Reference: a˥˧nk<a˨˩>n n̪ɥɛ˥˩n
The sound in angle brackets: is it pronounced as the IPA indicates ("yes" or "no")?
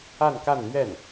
no